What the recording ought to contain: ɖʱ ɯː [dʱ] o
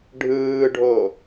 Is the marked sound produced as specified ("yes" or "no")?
no